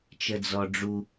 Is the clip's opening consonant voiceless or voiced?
voiceless